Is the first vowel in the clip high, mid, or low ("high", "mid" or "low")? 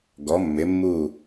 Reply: mid